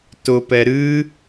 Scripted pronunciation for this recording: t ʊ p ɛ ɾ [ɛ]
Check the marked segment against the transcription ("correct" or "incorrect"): incorrect